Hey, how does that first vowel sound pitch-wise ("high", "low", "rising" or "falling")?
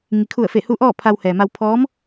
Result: low